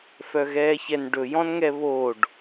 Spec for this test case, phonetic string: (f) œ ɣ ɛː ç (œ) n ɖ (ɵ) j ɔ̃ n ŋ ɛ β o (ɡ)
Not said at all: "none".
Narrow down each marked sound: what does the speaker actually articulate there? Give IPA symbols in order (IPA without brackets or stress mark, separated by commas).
f, ɛ, ɵ, ɖ